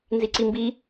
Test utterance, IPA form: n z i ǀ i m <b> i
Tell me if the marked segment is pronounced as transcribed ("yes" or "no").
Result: yes